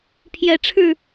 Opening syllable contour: rising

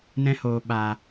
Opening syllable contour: high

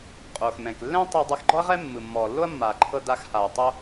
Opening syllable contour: low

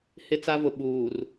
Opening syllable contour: high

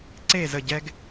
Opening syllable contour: falling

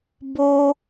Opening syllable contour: high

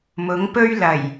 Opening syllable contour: rising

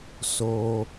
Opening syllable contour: low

